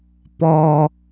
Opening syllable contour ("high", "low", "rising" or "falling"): low